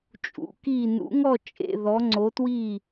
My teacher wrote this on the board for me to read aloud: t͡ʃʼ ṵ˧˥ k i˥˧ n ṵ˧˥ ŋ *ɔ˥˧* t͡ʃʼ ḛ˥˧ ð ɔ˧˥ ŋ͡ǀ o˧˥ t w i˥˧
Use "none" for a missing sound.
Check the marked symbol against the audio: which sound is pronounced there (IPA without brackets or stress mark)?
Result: ɔ˥˧